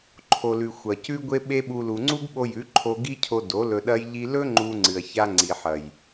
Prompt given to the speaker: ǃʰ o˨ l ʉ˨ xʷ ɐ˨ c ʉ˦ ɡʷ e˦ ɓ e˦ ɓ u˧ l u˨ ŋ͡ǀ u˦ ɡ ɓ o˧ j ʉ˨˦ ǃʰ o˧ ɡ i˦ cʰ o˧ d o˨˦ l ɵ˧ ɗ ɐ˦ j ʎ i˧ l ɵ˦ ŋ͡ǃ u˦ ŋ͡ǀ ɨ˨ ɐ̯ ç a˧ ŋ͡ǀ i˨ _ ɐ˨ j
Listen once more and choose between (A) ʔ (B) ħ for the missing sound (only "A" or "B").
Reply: B